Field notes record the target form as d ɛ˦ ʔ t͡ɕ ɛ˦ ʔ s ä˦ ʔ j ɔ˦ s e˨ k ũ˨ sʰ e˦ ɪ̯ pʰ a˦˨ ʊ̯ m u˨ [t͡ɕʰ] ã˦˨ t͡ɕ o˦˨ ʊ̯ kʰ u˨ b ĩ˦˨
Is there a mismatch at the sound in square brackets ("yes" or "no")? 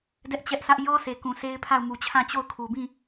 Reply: no